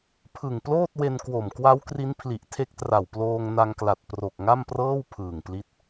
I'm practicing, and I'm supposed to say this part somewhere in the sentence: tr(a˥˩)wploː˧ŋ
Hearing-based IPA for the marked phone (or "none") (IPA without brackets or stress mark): a˨˩